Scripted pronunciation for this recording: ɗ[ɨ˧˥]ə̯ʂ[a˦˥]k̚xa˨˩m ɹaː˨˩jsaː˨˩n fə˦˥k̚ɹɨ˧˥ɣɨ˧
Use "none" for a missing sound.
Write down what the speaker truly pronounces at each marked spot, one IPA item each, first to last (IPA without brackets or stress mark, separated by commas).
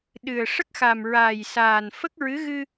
ɨ˨˩, ə˦˥